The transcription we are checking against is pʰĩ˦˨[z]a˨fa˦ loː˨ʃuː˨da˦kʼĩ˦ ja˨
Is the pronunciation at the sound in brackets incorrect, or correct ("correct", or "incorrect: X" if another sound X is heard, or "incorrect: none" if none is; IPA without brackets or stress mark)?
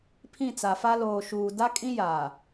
incorrect: t͡s